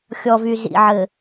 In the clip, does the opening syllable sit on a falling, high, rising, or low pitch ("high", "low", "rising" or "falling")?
low